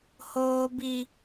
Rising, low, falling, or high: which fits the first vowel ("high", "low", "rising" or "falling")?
high